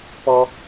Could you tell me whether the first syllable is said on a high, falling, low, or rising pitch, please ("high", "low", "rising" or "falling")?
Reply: high